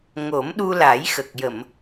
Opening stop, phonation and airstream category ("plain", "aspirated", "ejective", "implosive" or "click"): implosive